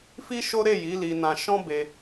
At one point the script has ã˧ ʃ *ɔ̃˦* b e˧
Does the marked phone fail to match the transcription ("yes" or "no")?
no